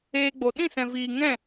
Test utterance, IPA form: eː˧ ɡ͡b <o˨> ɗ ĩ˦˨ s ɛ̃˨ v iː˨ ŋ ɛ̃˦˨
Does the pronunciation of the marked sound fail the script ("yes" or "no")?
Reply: no